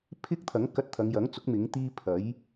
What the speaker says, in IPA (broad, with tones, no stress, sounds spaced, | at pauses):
pʰ ɪ˥ k̚ t̪ʰ ɐ˨˥ ŋ k ɐ˧ t̚ t̪ʰ ɐ˨˧ ŋ j ɐ˨˥ ŋ t͡s ʊ˨˥ k̚ m ɪ˨˥ ŋ t̪ iː˥ pʰ ɐ˨˥ j